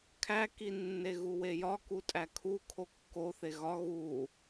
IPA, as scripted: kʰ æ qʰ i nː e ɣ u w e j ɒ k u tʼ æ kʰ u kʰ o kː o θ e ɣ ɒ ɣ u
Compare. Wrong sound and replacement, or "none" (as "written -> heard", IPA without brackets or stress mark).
qʰ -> k